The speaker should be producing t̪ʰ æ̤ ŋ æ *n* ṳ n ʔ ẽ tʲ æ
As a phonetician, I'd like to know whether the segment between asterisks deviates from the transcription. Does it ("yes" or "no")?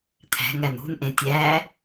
no